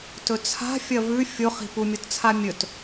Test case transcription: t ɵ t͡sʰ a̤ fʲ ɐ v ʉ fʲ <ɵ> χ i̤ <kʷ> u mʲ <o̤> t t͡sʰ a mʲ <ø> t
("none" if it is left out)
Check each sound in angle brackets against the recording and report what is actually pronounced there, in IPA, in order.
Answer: o, p, o, ɵ

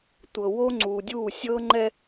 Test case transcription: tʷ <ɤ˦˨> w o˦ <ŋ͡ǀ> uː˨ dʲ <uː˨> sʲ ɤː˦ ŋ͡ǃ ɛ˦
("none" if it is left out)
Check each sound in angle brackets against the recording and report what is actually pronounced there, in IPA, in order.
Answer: ɤ˨, ŋ͡ǀ, uː˦˨

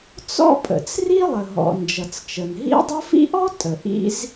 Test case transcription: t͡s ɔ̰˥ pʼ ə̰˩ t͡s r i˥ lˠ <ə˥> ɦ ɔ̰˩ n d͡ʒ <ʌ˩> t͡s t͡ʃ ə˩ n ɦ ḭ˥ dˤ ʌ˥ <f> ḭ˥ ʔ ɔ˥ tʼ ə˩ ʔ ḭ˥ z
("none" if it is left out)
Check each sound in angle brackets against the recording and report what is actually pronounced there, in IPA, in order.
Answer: ə˩, ʌ˩, f

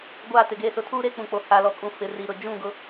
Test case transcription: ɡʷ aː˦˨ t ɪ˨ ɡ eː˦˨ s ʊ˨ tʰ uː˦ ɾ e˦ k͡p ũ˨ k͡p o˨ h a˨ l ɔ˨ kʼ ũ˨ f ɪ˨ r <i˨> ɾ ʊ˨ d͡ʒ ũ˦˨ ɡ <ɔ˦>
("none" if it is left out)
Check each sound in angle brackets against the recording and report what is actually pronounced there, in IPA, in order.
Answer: i˨, ʊ˦

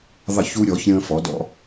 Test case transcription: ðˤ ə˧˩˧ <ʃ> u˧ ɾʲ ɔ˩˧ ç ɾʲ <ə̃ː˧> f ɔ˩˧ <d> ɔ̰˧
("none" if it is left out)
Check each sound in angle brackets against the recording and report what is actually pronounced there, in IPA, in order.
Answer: ç, ə̃ː˧, d

